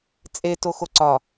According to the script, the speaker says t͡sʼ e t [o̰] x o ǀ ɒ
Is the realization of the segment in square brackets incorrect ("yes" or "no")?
yes